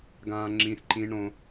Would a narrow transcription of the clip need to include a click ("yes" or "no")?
yes